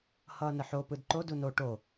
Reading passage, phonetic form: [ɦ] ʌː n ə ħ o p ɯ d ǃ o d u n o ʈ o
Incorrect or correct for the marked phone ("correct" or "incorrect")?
incorrect